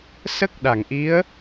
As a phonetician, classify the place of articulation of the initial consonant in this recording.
alveolar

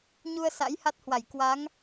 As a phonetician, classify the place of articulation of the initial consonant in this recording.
palatal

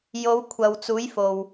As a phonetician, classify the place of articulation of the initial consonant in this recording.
palatal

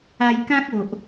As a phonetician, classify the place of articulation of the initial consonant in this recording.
palatal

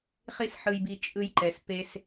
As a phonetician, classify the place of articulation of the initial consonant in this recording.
uvular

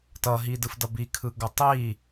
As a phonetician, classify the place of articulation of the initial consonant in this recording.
alveolar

